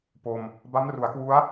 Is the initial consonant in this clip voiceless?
yes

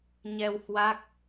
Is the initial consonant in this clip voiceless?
no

